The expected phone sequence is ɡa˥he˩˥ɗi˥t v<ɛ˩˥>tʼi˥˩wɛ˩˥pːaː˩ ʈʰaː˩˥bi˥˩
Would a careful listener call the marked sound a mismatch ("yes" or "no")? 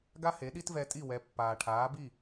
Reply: yes